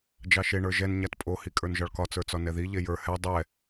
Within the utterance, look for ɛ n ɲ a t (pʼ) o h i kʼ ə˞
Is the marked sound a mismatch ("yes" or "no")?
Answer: no